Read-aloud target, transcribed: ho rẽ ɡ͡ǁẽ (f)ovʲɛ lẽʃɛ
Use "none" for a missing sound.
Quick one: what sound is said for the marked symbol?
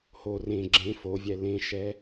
f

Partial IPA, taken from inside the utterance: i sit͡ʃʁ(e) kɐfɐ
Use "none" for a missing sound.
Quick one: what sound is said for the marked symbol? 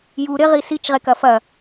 e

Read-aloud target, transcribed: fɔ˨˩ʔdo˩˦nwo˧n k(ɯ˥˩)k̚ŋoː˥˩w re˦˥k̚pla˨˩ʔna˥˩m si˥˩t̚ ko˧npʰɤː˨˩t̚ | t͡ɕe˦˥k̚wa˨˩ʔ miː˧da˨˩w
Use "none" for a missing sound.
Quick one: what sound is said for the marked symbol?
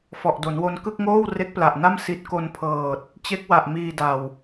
ɯ˥˩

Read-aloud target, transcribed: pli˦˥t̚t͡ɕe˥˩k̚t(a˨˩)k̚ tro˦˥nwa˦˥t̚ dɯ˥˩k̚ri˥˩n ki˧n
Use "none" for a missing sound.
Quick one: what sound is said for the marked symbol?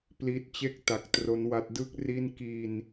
a˨˩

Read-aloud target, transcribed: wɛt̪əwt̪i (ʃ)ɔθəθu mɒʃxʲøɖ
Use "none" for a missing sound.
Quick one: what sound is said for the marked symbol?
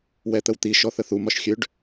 ʃ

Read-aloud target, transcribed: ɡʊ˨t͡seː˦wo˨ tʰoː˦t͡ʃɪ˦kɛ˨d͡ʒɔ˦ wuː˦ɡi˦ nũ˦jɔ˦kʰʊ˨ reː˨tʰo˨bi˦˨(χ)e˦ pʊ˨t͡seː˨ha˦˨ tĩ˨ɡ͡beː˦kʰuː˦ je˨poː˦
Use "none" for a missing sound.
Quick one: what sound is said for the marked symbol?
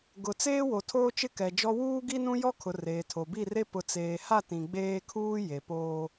r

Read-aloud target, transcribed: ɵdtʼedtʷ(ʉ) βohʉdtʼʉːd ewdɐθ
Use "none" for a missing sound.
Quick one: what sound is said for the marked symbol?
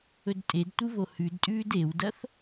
ɨ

